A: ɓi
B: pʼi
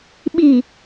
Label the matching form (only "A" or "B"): A